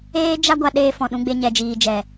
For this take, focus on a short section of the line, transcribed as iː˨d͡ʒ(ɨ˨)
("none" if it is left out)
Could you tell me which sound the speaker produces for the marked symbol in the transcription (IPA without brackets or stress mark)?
ɛ˨